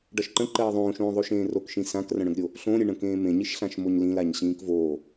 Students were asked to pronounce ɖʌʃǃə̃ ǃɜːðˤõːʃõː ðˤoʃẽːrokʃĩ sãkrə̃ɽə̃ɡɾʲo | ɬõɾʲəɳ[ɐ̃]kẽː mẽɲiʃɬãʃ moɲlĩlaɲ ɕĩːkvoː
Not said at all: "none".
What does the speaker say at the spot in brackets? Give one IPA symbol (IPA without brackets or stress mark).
ə̃